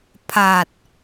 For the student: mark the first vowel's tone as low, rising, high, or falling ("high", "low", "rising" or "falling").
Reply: low